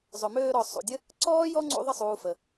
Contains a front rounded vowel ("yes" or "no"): yes